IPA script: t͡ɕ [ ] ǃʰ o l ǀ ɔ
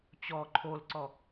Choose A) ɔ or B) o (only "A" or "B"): A